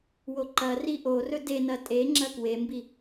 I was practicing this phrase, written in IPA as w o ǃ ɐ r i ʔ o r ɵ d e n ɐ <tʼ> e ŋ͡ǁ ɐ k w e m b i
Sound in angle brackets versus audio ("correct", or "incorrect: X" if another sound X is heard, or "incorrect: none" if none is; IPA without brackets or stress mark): correct